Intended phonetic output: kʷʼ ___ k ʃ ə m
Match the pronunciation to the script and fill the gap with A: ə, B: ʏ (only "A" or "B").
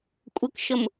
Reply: A